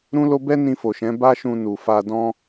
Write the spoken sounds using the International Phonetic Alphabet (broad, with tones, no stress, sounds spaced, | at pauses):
ɾ ũ˦ l o˦ b ɛ˦ n ĩ˧ f o˨ ʃ ɛ̃˨˦ b a˦ ʃ ũ˧ n u˨ f a˧ d ɔ̃˦